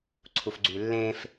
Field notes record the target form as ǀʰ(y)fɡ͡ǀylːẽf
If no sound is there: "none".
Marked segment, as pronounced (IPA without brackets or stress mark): u